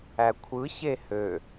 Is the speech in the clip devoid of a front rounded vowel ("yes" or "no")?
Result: no